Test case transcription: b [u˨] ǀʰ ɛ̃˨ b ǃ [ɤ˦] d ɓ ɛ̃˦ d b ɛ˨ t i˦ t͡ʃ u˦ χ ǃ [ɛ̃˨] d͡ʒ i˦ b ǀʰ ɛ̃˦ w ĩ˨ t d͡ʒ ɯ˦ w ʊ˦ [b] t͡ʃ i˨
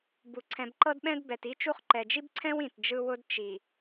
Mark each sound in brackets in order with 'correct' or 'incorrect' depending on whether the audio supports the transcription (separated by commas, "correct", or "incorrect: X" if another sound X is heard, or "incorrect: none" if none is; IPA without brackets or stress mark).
correct, correct, incorrect: ɛ˨, incorrect: d